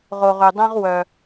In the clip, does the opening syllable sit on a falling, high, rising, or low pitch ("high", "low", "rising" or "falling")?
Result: low